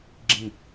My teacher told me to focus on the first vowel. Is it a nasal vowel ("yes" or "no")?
yes